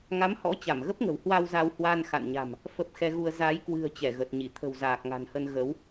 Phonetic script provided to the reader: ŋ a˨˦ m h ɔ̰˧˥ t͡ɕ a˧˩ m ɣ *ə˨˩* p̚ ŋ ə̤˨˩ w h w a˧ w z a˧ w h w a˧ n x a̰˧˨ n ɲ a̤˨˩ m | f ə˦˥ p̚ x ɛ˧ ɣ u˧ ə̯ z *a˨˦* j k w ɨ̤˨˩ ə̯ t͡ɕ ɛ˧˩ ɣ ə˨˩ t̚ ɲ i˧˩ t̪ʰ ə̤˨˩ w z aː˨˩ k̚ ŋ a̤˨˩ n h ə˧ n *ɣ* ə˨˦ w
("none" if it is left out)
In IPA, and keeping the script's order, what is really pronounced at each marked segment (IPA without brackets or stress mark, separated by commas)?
ə˦˥, a˨˦, ɣ